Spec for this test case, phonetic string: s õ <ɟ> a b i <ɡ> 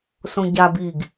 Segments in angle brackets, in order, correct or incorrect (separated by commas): correct, correct